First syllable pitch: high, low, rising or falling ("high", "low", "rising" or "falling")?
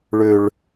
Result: high